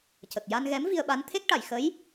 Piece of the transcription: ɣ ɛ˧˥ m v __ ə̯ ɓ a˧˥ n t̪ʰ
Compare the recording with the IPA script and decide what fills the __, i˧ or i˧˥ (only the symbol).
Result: i˧